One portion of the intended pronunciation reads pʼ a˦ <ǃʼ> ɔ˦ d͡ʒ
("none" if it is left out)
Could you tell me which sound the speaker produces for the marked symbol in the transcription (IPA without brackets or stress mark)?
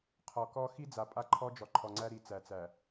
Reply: ǃʰ